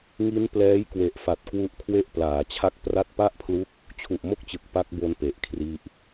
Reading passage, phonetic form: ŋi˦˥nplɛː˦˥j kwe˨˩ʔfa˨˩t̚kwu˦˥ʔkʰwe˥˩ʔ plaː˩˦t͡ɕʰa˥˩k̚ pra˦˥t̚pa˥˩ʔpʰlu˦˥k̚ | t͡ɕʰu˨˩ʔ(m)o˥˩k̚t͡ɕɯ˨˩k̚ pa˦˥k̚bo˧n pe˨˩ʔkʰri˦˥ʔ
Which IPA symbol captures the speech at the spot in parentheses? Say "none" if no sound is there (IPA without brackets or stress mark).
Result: m